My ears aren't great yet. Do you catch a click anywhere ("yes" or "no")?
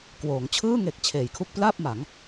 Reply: no